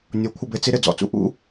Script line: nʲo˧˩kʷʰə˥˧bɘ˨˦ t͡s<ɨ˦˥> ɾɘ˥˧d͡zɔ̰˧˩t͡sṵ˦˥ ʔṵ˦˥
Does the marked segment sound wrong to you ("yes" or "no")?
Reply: yes